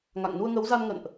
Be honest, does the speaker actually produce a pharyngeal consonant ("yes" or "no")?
no